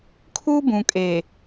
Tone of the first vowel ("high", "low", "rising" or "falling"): high